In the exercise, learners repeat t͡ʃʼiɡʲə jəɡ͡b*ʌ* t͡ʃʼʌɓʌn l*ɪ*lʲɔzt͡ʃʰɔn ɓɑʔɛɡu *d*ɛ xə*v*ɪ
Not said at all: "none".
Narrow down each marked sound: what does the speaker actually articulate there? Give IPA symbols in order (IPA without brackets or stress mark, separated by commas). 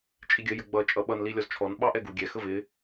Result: ʌ, i, ɡʲ, v